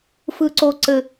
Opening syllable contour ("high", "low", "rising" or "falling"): low